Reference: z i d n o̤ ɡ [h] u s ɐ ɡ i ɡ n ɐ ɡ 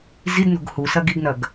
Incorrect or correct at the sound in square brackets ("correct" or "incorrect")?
correct